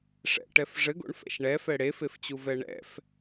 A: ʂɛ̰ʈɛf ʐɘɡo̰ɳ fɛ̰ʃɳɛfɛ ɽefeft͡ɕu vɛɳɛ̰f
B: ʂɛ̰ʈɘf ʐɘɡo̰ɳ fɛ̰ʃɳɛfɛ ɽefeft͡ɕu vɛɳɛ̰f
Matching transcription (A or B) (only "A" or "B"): A